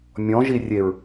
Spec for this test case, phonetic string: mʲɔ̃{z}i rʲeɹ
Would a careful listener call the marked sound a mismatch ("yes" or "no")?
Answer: yes